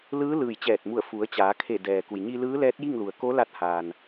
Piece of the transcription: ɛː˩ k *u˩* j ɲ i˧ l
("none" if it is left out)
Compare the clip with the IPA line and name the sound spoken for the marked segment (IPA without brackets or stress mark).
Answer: u˩